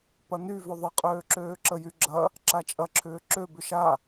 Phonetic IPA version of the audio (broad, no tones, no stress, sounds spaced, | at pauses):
p ɐ n y v ʏ ðˤ ə qʼ øː ǁ øː ǁ ə j y ɡ͡ǁ ɐ | ǁ a t͡ʃʼ ɐ ǁʰ ʏː ǁ ø b ʏ ʃ a